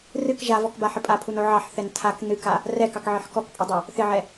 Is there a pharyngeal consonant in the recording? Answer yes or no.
yes